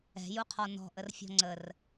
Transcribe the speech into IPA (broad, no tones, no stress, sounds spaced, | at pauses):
ɛ̤ j u qʰ ɔ n ɔ̤ ʔ ə r fʲ ɔ̤ ŋ͡ǀ ə r